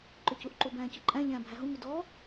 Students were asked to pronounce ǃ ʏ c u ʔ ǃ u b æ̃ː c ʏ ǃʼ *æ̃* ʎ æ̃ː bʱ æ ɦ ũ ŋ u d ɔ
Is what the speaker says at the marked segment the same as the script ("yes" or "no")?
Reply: yes